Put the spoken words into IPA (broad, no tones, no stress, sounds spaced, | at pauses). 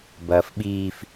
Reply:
b ɐː f ɓ iː f